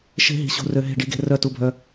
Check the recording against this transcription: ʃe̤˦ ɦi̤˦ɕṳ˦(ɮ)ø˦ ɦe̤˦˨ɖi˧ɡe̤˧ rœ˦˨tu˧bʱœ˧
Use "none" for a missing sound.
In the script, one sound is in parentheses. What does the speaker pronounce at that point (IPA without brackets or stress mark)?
r